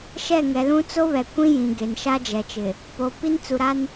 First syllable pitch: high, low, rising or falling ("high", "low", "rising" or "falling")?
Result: falling